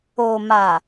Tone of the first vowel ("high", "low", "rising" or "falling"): low